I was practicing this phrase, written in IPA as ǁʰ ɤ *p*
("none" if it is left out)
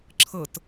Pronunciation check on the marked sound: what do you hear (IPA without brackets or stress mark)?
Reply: t